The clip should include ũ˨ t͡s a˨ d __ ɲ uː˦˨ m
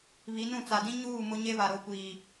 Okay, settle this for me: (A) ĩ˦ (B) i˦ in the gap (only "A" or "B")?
A